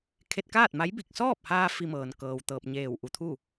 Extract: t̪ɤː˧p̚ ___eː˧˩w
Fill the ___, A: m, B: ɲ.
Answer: B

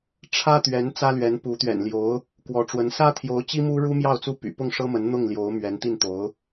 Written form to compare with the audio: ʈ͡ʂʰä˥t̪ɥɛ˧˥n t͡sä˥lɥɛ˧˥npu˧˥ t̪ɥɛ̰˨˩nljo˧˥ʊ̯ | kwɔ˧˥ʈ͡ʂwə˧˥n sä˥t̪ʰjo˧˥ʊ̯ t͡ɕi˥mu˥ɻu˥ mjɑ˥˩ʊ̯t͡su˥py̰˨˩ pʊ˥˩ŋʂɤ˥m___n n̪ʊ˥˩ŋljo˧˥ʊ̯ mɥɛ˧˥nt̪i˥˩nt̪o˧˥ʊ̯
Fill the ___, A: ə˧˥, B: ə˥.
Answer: A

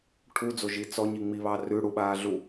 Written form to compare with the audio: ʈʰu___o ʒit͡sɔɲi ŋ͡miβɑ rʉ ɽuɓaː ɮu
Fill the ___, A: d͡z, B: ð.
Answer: A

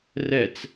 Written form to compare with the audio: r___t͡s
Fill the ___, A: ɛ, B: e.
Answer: A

